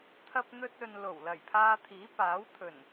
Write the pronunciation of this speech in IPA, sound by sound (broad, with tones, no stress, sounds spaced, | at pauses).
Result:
t̪ʰ ɐ˧ p̚ n̪ ɵ˧ t̚ ɵ˨ n l o˨˩ w l ɐ˨˩ j pʰ aː˧ t̪ʰ iː˨˥ p aː˨˥ w t̪ʰ ɵ˨˩ n